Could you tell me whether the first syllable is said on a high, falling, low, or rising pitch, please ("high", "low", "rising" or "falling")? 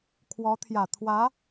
rising